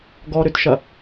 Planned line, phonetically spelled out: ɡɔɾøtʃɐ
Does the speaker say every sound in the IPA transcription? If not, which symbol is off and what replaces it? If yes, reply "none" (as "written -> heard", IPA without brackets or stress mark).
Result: none